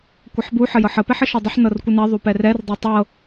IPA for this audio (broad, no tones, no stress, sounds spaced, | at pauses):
kʷ ə ħ b u ħ ə j ɤ ħ ə p ɛ ħ ə ʃ ɤ dˤ ə ħ n ɤ r kʷ ə n ɛ ðˤ u p ɛ r ɛ r dˤ ɤ tˤ ɤ